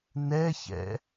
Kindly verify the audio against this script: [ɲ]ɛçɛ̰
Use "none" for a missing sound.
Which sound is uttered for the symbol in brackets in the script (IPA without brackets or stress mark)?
n